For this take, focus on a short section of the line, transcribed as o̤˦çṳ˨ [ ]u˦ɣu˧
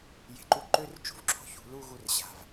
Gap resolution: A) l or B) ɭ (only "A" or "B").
A